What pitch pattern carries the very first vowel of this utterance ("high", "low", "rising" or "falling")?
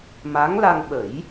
rising